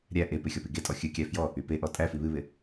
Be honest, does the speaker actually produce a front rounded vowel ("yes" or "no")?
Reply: yes